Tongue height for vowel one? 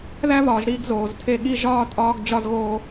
low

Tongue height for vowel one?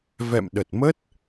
mid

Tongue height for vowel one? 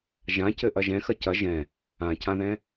low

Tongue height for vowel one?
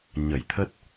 mid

